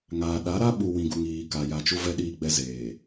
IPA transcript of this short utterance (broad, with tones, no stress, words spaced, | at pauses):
ŋaː˨ɗa˨˦ɾa˦ ɓu˨ wĩ˨ɡu˨ŋ iː˨ka˨ ja˨ t͡ʃu˦vɛ˦ ɗiː˦ɡ͡bɛ˦zeː˨